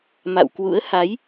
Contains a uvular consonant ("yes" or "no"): no